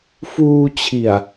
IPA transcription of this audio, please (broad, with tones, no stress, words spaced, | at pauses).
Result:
fuː˧t͡ɕʰi˨˩a̯